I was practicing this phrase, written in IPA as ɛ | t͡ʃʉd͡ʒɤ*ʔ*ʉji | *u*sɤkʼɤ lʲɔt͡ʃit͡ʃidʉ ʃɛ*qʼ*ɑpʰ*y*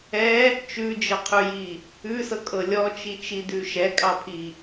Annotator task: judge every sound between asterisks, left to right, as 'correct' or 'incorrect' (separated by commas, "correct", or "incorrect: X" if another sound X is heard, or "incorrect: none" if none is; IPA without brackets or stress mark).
incorrect: qʰ, incorrect: ʉ, incorrect: kʼ, incorrect: i